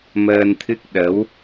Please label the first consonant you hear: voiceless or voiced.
voiced